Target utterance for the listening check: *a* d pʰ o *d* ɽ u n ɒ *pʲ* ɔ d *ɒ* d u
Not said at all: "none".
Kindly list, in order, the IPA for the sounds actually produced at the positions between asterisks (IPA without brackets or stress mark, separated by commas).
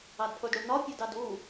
ɑ, d, pʲ, ɑ